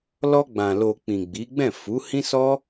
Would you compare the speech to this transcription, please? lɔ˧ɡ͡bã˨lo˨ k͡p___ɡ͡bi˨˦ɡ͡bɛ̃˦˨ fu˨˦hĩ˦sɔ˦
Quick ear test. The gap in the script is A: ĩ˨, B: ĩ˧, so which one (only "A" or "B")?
A